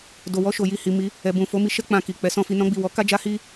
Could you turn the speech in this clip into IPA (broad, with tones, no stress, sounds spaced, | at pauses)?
d o˨ w ɔ˧ ʃ o˨ j i˨ h i˨ m i˨˦ | ɛ˨ b ũ˨ f o˨˦ m i˧ ʃ ɛ˦ k͡p ã˧ k i˨ k͡p ɛ˨˦ s ɔ̃˦ f i˧ n ɔ̃˦ ɡ͡b i˦˨ w ɔ˨˦ k a˦ d͡ʒ a˦ h i˦